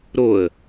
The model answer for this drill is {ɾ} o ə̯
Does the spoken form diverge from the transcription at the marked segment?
no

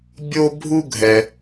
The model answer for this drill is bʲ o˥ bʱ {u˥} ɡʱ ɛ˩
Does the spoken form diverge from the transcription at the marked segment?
no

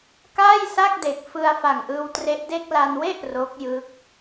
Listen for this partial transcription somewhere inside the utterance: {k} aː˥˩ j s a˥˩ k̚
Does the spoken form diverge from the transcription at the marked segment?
no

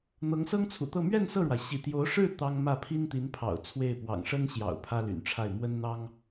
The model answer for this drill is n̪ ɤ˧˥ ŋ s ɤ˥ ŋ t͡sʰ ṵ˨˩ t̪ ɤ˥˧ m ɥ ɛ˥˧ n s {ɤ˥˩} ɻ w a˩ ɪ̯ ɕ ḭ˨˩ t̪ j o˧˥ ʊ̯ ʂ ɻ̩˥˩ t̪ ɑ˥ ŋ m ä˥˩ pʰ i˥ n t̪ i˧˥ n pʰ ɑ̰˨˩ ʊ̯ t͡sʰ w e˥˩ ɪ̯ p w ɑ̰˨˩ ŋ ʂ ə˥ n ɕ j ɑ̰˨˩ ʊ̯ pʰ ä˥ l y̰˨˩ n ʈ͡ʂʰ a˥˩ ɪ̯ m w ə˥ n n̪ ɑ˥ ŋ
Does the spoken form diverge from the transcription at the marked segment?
no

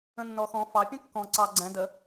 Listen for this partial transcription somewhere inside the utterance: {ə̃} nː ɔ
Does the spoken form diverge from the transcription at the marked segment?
no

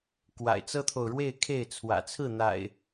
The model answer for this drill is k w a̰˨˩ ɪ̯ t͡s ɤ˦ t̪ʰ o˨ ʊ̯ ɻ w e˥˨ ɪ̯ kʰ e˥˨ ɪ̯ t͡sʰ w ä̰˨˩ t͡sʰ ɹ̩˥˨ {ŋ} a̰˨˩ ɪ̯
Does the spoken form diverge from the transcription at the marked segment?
yes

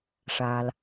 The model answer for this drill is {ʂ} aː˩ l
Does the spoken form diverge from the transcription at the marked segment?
no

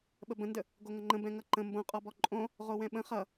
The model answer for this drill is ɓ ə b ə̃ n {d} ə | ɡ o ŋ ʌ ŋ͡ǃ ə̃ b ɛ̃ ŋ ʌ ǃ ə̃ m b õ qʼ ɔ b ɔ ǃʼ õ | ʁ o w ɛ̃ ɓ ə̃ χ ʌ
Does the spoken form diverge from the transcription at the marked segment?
no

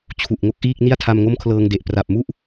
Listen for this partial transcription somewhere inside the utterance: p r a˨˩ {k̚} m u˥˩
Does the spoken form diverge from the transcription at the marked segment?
yes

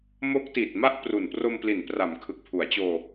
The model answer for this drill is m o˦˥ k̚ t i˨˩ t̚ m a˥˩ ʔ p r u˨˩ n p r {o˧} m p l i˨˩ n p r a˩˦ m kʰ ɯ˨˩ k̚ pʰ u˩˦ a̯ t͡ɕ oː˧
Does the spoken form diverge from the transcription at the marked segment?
no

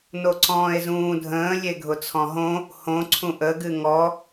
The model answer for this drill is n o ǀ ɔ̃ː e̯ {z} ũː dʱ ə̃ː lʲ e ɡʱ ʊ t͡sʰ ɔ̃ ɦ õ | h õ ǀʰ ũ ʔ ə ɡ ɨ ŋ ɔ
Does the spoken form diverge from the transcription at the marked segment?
no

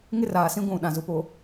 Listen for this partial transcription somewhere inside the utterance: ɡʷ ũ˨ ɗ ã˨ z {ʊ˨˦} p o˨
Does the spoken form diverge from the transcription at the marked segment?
yes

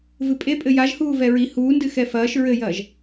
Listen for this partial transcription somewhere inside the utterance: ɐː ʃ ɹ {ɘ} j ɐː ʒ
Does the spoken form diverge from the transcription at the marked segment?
no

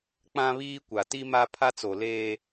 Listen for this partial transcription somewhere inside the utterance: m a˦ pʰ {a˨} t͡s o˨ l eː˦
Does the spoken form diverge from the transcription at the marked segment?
yes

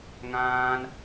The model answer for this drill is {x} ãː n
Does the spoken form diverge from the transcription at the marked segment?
yes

